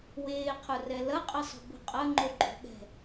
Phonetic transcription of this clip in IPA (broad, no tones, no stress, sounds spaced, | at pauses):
w eː qʰ ʊ r ɛ l ɐ qʼ ɐ sˤ o̤ b o̤ qʼ ɐ ŋ͡ǃ o ɡ͡ǃ o̤ ɠ ɛ̤